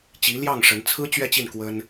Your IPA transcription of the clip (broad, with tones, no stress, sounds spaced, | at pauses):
t͡ɕ i˧˥ l j ɑ˥˩ ŋ ʂ ə˧˥ n t͡sʰ ɹ̩˥ t͡ɕ ɥ ɛ˥ t͡ɕ i˥˩ n k w ə˥ n